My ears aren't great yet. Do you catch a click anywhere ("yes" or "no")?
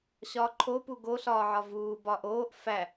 yes